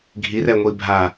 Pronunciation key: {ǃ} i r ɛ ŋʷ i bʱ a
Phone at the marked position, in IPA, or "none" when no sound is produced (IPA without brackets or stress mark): ɡʱ